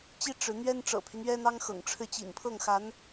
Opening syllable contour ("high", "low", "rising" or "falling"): high